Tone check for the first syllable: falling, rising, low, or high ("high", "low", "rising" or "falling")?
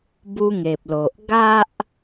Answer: high